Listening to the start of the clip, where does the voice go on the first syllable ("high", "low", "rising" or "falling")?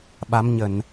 rising